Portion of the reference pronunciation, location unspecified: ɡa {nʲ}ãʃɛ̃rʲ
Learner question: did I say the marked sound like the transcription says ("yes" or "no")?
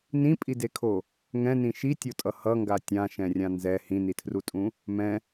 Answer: no